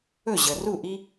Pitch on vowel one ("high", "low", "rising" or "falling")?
falling